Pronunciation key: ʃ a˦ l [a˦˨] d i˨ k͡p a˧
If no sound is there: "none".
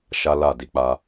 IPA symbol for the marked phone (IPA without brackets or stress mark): a˦˨